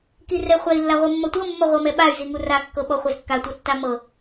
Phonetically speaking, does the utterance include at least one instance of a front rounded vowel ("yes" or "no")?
yes